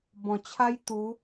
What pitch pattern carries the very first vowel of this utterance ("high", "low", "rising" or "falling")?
low